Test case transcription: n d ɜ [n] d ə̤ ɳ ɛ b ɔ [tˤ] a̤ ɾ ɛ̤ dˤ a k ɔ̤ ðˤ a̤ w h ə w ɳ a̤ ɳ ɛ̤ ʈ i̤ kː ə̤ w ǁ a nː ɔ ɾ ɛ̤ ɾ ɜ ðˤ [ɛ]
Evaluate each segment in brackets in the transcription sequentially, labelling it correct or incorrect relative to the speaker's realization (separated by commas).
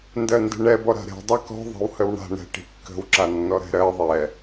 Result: correct, incorrect, correct